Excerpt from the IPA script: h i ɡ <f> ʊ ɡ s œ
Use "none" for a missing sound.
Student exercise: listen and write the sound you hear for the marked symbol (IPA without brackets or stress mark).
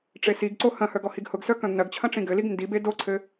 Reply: h